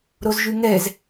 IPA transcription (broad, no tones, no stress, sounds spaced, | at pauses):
ɾ o z ʒ y ŋ ɛ z